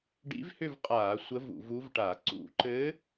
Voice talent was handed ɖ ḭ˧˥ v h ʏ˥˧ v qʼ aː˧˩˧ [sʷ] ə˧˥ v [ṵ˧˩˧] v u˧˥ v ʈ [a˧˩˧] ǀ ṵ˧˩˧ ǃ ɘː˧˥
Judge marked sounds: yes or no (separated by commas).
yes, yes, yes